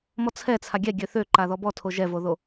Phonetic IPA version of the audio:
m ɔ t͡sʰ ɛ t͡sʰ a ɡʲ ɛ ɡʲ ø θ ø ǃ a ð ɔ b ɔ tʰ o ʒ ɛ v o ð o

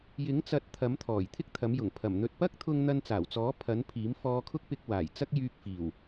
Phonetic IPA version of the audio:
j ɪ˨˥ ŋ t͡s ɐ˨˥ t̚ t̪ʰ ɐ˨˥ m t̪ʰ ɔː˨˩ j t̪ʰ ɪ˥ k̚ t̪ʰ ɐ˨˥ m j ʊ˨˩ ŋ pʰ ɐ˨˩ m n̪ ɵ˧ t̚ p ɐ˥ k̚ t̪ʰ ʊ˧ ŋ n̪ ɐ˧ n t͡s aː˨˩ w t͡s ɔː˨˥ pʰ ɐ˨˥ n pʰ iː˨˥ m f ɔː˧ kʰ ʊ˥ k̚ p ɪ˧ k̚ w aː˨˩ j t͡s ɐ˥ k̚ j yː˧ k̚ f iː˨˩ w

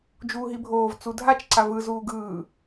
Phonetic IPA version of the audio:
d͡ʒ uː ɦ i bʱ oː v t͡s u dʱ a t͡ʃ ǀ a v ɯ z uː ɡ ɯː

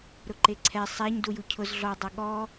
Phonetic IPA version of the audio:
ɾ ʊ ǃ e ǀʰ ɛ sˤ ɛ ɲ d u j u cʰ ʊ z ɮ ɔ dˤ ɐ ɠ ɔ

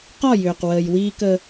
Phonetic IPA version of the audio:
q ɒ˦˨ j ʏː˨ q w əː˨ j w iː˦ k ə˦

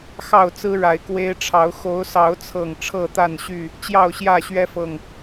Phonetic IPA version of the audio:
x ɑ˥˨ ʊ̯ t͡s ɹ̩˦ ɻ a˨˦ ɪ̯ k w e˦ ɪ̯ ʈ͡ʂʰ ɑ˨˦ ʊ̯ x o˨˦ ʊ̯ s ɑ˨˦ ʊ̯ t͡sʰ ɤ˨˩ ŋ ʈ͡ʂʰ ɤ˥˨ t̪ a˥˨ n ɕ y˥˨ | t͡ɕ j ɑ˥˨ ʊ̯ ɕ j ä˥˨ ɕ ɥ ɛ˦ f ɤ˨˩ ŋ

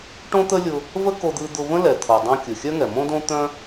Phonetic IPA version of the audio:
ʈ õ˥ t̪ ə˥ lʲ ʊ˧ | v ə˥ k o˧ d̪ ɯ˧ d̪ ʊ˧ v ə̃˥ l ɛ˩ t̪ʰ o˩ dˤ õ˧ kʲ ɯ˩ xʲ œ˥ ŋ ɛ˩ m õ˥ d õ˥ t̪ œ̃˥

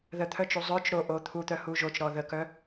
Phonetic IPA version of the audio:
ð ə t̪ʰ œ t͡ʃ u zˤ œ t͡ʃ ɾ o ʔ o t̪ʰ u t̪ œ h u ʒ o t͡ʃ ɾ ɔ ð ə k œ

